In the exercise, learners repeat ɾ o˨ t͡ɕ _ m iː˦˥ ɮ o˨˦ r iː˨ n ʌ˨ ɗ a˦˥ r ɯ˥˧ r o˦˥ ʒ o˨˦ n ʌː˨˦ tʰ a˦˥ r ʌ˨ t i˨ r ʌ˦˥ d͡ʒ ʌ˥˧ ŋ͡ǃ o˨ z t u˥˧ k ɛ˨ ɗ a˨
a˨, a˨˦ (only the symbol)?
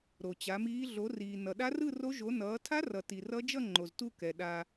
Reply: a˨˦